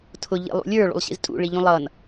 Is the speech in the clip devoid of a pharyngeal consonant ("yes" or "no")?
yes